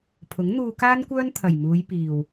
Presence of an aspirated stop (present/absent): present